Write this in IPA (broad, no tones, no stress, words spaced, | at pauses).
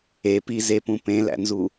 epizepũ pẽlæ̰nzu